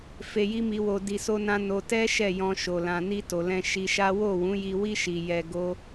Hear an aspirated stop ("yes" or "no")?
no